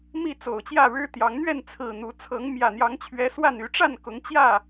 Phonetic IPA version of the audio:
m i˥˨ t͡s o˨˩ ʊ̯ t͡ɕ j ä˥˨ ɻ ɻ̩˦ t̪ j ɑ˨˦ ŋ n̪ ɥ ɛ˥˨ n t͡sʰ ɹ̩˨˩ n̪ u˨˦ t͡sʰ ɤ˨˦ ŋ m j ä˨˩ n̪ j ɑ˨˦ ŋ t͡ɕʰ ɥ ɛ˨˦ s w a˥˨ n y˨˦ ʈ͡ʂ a˥˨ n k ʊ˨˦ ŋ t͡ɕ j ä˥˨

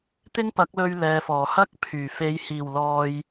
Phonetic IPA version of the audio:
t̪ ɪ˥ ŋ p ɐ˨˥ k̚ l ɵ˧ ɥ l ɛː˨ f ɔː˨˩ h ɐ˥ k̚ pʰ yː˨˩ f e˨˧ j h iː˨˩ w l ɔː˨ j

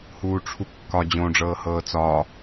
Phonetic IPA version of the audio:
h uː ʈ͡ʂʰ u kː ɒ d͡ʑ õ ɖ͡ʐ ɤː h ɤː t͡s ɒ

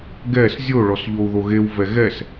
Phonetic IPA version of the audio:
ɡ ɛ s zʲ o ɭ ɔ s ʎ o u̯ ð o ɣ e w v ɛ ɣ ɛ s

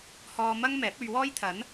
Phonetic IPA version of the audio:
h ɔː˧ m ɐ˥ ŋ m ɛː˨˥ p̚ ɵ˧ ɥ w ɔː˥ j t̪ʰ ɐ˨˥ n

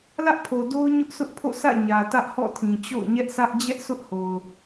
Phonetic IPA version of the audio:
l ä˦ ʔ pʰ o˨ d o˦ ʊ̯ ɲ ʊ˦ ʔ s ʊ˦ ʔ pʰ o̰˦˨ s ä̰˦˨ ɲ ä˨ t ä˦ ʔ h ɔ̰˦˨ tʰ ĩ˨ t͡ɕ o̰˦˨ ʊ̯ ɲ ɛ˦ ʔ s ä˦ ʔ d͡ʑ ɛ˦ ʔ sʰ ʊ˦ ʔ h o˨ ʊ̯

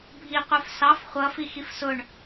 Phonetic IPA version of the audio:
bʱ i qʷ ə˞ f s ɑ f χʷ ʌ f i x i f s ʊ ɳ

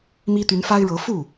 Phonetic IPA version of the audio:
m i˥ t̪ y˧˥ n f a˥ ɪ̯ ɻ ɤ˧˥ f u˥˩

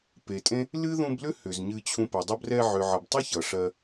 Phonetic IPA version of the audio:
p e˨ tʼ ẽ˦ | l ɨ˦ ð ũ˧ b l ʏ˦ h ʏ˨ z ɲ ɨ˧ t͡ɕʰ ũ˧ p ɛ˨ dˤ ʌ˧ b r ɛ˧ ʕ ʏ˨ ʕ ʌ˨ b tˤ u˦ ç ʌ˨ ʂ ɜ˧

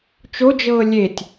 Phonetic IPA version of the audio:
t͡ʃ o d͡ʒ ɤː lʲ e tʲ

